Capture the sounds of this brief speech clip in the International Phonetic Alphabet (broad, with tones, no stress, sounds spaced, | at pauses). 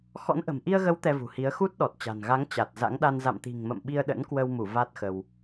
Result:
x ɔ̰˧˥ n ʔ ə̤˨˩ m ʔ i˧ ə̯ ɣ ə˨˦ w t̪ ɛ˧ v ṳ˨˩ h i˨˦ ə̯ x u˦˥ t̚ ɗ ɔ˨˩ t̚ t͡ɕ a̤˨˩ n ɣ a˨˦ ŋ t͡ɕ a˨˩ t̚ z a̰˧˥ ŋ ɗ a˧ n z a̰˧˨ m t̪ i̤˨˩ ŋ m ə̰˧˨ m ɓ i˧ ə̯ ɗ ə̰˧˥ n k w ə˧ w m u˧˩ v a˦˥ t̚ x ə˧ w